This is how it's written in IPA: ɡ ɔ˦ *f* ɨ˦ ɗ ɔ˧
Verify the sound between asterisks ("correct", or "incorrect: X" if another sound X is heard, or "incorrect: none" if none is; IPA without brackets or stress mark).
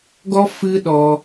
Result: correct